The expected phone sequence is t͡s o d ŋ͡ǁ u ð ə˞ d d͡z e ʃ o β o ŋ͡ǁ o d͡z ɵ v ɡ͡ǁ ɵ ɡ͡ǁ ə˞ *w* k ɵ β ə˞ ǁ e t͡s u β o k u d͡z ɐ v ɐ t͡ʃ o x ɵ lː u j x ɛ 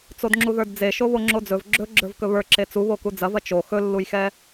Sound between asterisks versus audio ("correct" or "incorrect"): incorrect